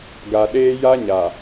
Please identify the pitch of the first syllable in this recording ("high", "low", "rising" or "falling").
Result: low